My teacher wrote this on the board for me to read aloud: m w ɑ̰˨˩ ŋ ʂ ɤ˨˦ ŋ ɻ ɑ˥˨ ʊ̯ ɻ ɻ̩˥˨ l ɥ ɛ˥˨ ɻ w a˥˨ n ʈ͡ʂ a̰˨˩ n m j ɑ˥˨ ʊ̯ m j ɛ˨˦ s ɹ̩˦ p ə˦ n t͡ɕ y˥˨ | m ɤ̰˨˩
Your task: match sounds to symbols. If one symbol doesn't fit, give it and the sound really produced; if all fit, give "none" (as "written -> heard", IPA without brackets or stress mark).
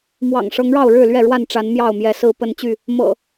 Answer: a̰˨˩ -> a˨˦